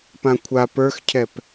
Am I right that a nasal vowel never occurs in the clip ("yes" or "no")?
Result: no